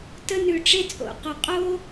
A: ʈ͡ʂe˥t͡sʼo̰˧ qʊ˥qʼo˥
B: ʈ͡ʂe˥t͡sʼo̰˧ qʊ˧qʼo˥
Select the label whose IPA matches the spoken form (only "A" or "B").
B